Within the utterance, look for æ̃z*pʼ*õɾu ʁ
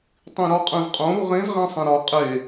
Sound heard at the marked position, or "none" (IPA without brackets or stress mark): qʼ